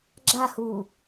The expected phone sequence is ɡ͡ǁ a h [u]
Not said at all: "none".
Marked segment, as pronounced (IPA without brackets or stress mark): uː